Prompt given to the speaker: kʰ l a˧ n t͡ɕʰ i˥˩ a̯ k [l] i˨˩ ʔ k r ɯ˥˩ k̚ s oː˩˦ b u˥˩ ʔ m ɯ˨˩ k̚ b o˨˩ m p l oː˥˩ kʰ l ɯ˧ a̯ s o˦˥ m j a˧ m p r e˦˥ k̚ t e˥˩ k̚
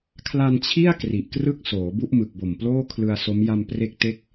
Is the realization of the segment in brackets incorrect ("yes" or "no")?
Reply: yes